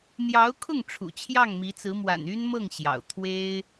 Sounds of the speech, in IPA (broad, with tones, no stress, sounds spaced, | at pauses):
n̪ j ɑ˧˥ ʊ̯ kʰ ʊ˥˩ ŋ ʈ͡ʂʰ ṵ˨˩ t͡ɕʰ j ɑ˥˩ ŋ m i˧˥ t͡s ɹ̩˧˥ m w a̰˨˩ n y˥ n m ɤ˥˩ ŋ ɕ j ɑ̰˨˩ ʊ̯ t̪ʰ w e˥ ɪ̯